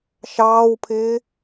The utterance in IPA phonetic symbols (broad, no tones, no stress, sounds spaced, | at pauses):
ʃ ɑː w pʰ ɪː